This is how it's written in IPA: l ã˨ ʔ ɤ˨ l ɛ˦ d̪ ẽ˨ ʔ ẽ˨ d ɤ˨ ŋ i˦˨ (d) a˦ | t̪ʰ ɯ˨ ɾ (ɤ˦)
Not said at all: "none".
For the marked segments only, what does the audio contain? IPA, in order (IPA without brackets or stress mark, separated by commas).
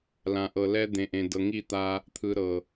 t̪, ɤ˨